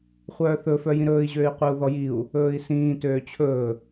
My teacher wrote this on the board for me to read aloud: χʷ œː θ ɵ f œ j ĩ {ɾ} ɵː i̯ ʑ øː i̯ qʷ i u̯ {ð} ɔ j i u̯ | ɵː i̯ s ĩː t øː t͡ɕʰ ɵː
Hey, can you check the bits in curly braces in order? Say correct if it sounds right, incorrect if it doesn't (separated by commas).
correct, correct